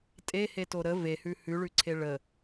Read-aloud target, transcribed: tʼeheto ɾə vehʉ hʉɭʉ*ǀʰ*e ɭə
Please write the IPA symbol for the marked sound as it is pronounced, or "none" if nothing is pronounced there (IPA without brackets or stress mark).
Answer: ǀʰ